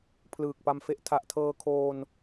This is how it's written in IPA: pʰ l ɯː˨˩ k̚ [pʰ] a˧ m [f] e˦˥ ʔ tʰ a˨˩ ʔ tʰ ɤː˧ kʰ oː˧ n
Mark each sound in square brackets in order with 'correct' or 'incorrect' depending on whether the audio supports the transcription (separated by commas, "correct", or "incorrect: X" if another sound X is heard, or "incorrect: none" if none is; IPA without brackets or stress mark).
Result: incorrect: p, correct